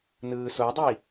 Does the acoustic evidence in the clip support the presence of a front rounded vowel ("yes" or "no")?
no